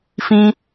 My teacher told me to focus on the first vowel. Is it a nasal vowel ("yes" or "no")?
yes